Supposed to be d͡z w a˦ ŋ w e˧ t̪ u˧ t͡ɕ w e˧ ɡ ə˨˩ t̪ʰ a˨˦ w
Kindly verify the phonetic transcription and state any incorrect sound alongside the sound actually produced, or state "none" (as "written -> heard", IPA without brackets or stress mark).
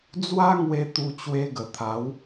none